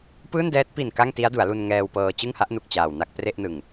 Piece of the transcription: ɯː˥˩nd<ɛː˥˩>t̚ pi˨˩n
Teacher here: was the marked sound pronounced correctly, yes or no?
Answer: no